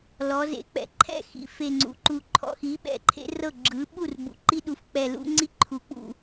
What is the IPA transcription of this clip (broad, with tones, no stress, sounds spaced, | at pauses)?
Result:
l ɔ˩˧ z ḛ˩˥ k͡p ɛ̰˩˥ ǃʰ ɛ̰˥˩ x ḭ˩˧ f e˨˩ ŋ͡ǀ ṵ˩˧ ǃ u˨˩ ǃʰ ɔ̰˩˧ x i˩˥ ɓ ɛ̰˩˧ ǃʰ ḛ˦ r ɤ˥˩ ɡ͡ǁ ɯ˩˥ ɓ u˥˩ r b ṵ˩˥ ǃ i˦ ɗ u˩˥ f k͡p ɛ˨˩ l ṵ˦ ŋ͡ǀ i˦ ǃʰ u˩˧ k͡p ṵ˨˩